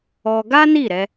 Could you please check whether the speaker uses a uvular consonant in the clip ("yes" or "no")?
no